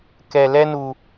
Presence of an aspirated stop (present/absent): absent